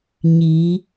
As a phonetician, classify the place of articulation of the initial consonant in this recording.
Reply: palatal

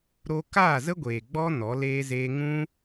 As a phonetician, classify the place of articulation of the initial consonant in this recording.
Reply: alveolar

